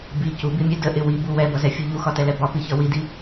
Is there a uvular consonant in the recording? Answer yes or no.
no